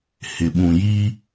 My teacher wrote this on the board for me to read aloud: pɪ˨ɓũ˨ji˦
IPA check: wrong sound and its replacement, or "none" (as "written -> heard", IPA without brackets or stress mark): p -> h